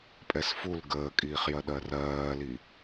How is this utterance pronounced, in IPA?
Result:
pʼɛsful ɡəːkʼiːχjɜ ɗɜrɜːli

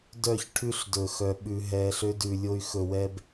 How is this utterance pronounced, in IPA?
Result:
dœ˦˨çʈʰʉ˦ɬ dɵ˨xœ˨ ɓʉ˨ɦɛː˨ɬ ø˦dʉ˨lʲo˦y̯ xɵ˨wɛ˦b

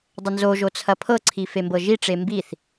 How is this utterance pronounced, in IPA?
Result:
dˤənzo ʒot͡sʰɐpʰɤ ǀʰifembɤʒi ʈ͡ʂembiθ

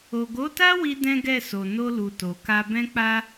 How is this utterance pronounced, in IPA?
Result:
o˨ɡo˨˦ta˦ wi˦dɛ̃˦ɡɛ˦˨so˨ no˧lu˨ to˨ka˧ bɛ̃˦k͡pa˦

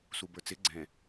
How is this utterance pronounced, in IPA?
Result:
subə˞t͡sɪ ɡ͡ǀɛ̃

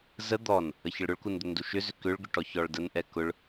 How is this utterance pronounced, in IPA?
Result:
zə d̪ɔn | əçəɭɾʊɭkun d̪ʏnduʃʏzʏ kʏɭɡʏ ʈɔçɔɭdənʔɛ kʊɭ

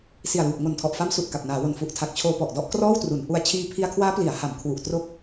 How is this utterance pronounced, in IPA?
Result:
si˨˩a̯luː˨˩p̚ ŋo˨˩ntʰɔ˨˩ʔfa˦˥m su˨˩ʔka˨˩p̚naː˩˦wo˨˩n fu˨˩ʔtʰa˨˩k̚t͡ɕʰoː˧ pɔ˨˩ʔdɔ˥˩ʔkrɔː˥˩wtru˩˦n ʔu˧a̯ t͡ɕʰiː˧pʰi˧a̯kʰwaː˦˥ pli˩˦a̯ha˩˦m kʰwu˨˩ʔtro˦˥k̚

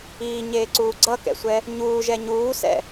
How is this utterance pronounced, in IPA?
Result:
iːɲeːǀuː ɡ͡ǀʌkɛ̰sʷɛ | ɲuːʒɛ ɲuːsɛ̰

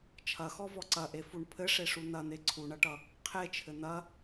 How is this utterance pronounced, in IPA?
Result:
t͡ʃʰɐxɔvɔ ǀɐʔefuɳ pʰɘʂeʂu n̪ɐn̪e ǀʰuɳɐʈʌ | qʰet͡ʃʰɘ n̪ɐ

